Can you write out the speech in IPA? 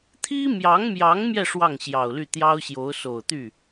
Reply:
t̪ʰi˥mjɑ˧˥ŋmjɑ˧˥ŋmjɛ˧ ʂwɑ˥˩ŋɕjɑ˨˩ʊ̯ly˥˩ t̪jɑ˥ʊ̯ɕjo˧˥ʊ̯so˨˩ʊ̯t̪y˥˩

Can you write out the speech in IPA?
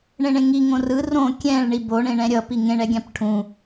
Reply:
ɳẽɳẽŋiŋõ rɯ rõ kʲɛ̃ɭ ɳibo ɳẽɳɛ̃ɾʲʌ piŋẽɳɛɡʲãp ʈʰũ

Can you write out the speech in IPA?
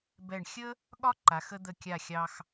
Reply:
bɛ˧˩ɳxʲə˥ | ɠɒ˥ǃa˩˧xə˧ d̪ə˧˩kʲa˧˩xʲɑ˧x

